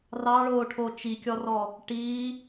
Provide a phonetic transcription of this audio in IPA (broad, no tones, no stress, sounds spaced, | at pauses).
r ɑ ɭ oː ʈʰ o t͡ʃ i kʲ ɔ r ɔ | ʈ iː